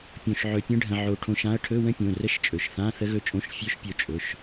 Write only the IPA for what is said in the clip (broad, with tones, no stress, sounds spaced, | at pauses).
pʲ õ˧ ʃ ʕ ɵ˧ pʲ ə̃˦˥ ɖʱ ə̃˧ ʕ o˧ ʈʰ õ˧ ʃ ã˦˥ ɐ̯ ʈʰ ɵ˧˥˧ w ə̃˦˥ pʲ õ˩˧˩ r ə˧˥˧ ʃ t͡ʃʼ ɵ˩˧˩ ʃ θ ã˧˥˧ θ ə˦˥ ɣ ɵ˦˥ t͡ʃʼ õ˧˥˧ ʃ fʲ ɵ˦˥ ʃ pʲ o˧ t͡ʃʼ ɵ˩˧˩ ʃ